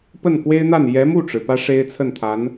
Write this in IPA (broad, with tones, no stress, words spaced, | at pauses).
pə˥˩nkwe˥ɪ̯n̪a˥˩n jɛ˧˥ mu˥˩ʈ͡ʂɻ̩˩ pä˥ ʂe˥ɪ̯t͡sʰə˥˩nt̪ʰa˧˥n